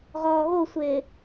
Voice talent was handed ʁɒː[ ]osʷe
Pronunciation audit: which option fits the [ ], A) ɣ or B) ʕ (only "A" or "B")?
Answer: A